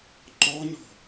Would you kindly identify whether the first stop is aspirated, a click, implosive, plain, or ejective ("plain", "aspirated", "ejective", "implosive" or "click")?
click